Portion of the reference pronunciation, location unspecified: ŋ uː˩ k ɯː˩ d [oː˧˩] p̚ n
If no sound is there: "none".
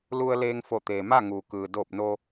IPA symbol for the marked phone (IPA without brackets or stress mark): oː˧˩